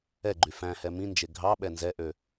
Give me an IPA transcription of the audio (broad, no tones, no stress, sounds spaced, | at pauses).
ɛ ɡ͡ǃ y f æ̃ h ɛ m ĩ n d͡ʒ e ɡʱ ɑ ɓ ɛ n z ɛ ʔ ø